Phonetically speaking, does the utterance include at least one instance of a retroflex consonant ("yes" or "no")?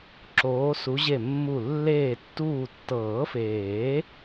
no